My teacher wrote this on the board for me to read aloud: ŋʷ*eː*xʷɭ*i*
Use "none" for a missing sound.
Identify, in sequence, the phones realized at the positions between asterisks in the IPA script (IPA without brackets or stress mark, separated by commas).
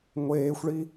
eː, i